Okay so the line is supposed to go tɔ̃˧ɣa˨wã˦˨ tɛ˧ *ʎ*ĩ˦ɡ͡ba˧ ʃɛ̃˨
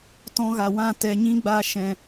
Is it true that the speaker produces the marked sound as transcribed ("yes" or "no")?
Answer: no